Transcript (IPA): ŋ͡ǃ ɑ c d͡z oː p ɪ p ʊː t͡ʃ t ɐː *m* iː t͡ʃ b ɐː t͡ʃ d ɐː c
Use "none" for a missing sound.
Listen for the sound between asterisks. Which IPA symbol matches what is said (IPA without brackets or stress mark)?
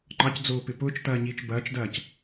ɲ